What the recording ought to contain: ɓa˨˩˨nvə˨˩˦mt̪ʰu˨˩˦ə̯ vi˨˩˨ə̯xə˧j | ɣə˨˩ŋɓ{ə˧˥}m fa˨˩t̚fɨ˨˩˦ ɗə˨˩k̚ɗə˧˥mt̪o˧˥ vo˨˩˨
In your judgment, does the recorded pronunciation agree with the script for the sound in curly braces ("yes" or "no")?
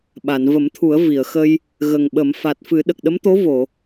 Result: no